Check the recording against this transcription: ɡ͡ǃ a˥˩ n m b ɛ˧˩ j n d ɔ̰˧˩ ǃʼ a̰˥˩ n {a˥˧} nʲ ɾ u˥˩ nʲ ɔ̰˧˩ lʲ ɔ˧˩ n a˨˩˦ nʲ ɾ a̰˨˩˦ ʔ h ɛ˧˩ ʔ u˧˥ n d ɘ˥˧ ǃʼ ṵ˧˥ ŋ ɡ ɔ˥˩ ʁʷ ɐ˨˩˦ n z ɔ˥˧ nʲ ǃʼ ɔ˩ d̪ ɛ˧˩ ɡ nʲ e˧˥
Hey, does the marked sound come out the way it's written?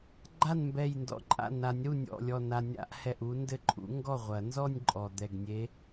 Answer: no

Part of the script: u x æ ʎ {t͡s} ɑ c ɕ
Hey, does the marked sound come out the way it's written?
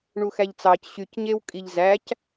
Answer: yes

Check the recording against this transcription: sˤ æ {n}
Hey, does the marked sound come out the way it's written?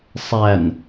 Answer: yes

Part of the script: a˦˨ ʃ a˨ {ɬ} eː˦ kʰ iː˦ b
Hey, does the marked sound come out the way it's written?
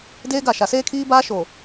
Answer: no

